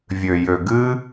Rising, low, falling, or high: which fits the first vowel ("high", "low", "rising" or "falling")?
low